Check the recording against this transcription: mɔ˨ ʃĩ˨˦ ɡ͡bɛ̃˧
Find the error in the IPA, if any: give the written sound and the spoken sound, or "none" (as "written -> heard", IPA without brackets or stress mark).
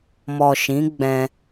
none